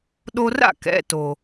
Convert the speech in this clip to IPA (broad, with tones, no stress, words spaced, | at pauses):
ɗo˧ra̰˥˩kɛ̰˩˧˩ to˩